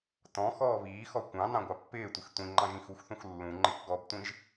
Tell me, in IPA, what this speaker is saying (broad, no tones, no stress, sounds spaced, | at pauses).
t ɔ̃ x ɔː β iː x ɔ kʷ ɑ̃ n ɑ̃ ɡʷ ɑ pː ɪː tʷ ɪ x tʷ ĩ ŋ͡ǃ ɑ̃ ʒ ĩ x u x θ ũ x lː ũ ŋ͡ǃ ɪ k ɡ ɔ b tʷ ĩ ʒ